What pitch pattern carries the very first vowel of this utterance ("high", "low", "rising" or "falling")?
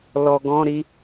low